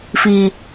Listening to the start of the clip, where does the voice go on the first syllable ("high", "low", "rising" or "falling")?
high